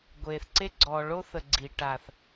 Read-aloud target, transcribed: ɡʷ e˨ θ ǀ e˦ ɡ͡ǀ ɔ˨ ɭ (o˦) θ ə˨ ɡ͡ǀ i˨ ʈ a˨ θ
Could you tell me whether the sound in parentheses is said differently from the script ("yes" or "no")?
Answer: no